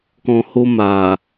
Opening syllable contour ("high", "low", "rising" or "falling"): low